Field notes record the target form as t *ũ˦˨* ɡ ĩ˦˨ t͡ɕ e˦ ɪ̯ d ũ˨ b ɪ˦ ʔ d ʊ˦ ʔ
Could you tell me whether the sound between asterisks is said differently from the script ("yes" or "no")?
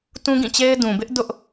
yes